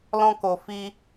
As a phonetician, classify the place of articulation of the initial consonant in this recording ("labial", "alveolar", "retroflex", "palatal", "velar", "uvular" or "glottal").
alveolar